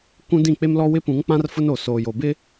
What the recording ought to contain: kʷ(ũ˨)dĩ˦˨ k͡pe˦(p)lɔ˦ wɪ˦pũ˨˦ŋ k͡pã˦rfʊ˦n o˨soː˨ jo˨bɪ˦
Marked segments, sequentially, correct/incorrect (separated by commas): incorrect, incorrect